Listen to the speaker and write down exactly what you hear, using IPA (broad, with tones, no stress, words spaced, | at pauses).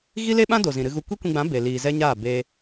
ɣi˦le˦ɓã˦ do˨zĩ˨ɾɨ˧ɣu˧ kʷi˦kʷĩ˧ɡ͡bã˨˦ be˨liː˨zɛ˦ɲaː˦˨ be˧